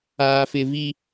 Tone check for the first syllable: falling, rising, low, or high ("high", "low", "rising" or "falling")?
high